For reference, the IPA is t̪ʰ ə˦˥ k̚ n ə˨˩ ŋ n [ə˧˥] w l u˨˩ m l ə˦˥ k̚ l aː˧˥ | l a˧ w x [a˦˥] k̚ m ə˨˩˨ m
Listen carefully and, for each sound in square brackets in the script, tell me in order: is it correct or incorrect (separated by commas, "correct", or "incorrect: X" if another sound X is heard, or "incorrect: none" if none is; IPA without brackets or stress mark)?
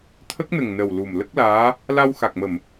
incorrect: ə˨˩, incorrect: a˨˩